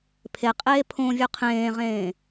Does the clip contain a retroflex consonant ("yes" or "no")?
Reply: no